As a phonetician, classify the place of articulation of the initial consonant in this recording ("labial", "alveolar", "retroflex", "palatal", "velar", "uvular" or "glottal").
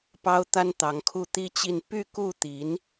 labial